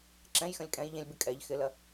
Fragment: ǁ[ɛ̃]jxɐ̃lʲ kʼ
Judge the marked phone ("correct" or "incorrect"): correct